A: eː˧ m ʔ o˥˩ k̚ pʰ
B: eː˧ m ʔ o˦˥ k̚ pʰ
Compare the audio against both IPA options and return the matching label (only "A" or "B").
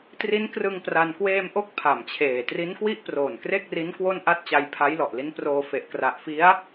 B